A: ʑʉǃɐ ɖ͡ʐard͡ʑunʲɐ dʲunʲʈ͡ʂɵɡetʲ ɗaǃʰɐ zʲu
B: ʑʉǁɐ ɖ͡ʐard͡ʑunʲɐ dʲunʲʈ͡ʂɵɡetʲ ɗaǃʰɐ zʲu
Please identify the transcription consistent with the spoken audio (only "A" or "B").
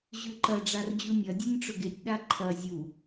A